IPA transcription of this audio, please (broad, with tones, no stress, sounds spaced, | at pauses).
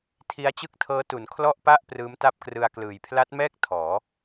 tʰ i˦˥ a̯ t͡ɕ ɯ˥˩ k̚ tʰ ɤː˦˥ t u˩˦ n kʰ l ɔ˥˩ ʔ p a˥˩ ʔ p r ɯː˦˥ m t a˥˩ p̚ k r ɯ˧ a̯ k l ɯː˨˩ j pʰ l a˦˥ t̚ m ɛː˥˩ k̚ tʰ ɔː˩˦